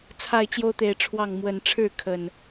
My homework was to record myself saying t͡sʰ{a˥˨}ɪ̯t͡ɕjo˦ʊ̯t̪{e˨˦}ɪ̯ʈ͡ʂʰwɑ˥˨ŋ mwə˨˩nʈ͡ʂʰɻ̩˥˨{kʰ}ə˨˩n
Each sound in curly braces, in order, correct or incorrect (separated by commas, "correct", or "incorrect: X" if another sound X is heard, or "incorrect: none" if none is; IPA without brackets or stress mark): correct, correct, correct